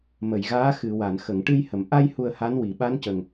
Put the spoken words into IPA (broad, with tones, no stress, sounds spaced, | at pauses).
m ə˨˩˨ j ɣ aː˧˥ x ɨ˨˩˨ w a˨˩˨ n x ə˨˩˨ ŋ ʈ ɨ˧ j h ə˨˩˨ m ʔ a˧ j h u˧ ə̯ h a˧˥ n w i˨˩˨ ɓ a˧˥ n c ə˨˩ ŋ